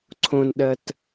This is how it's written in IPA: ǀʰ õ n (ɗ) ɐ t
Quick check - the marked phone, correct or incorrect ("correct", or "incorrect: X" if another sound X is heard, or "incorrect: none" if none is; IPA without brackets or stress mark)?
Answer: correct